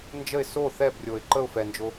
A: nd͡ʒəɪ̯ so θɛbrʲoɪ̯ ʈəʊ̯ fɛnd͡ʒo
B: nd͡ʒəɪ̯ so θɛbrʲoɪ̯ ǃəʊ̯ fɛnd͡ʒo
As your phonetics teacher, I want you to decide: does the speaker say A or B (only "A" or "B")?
B